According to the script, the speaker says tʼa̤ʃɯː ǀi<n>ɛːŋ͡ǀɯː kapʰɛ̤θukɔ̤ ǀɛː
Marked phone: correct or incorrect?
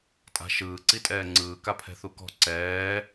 incorrect: tʼ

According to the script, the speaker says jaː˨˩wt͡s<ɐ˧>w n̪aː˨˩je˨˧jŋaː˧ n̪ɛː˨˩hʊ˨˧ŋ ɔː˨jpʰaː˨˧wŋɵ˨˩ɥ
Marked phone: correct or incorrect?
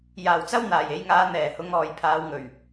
incorrect: ɐ˥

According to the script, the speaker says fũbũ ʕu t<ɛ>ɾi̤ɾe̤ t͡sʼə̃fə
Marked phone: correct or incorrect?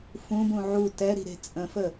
correct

